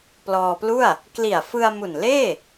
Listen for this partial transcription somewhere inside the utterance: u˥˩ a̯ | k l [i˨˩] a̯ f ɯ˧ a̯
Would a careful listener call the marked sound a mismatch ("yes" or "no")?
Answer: no